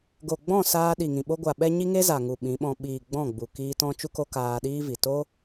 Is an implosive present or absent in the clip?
present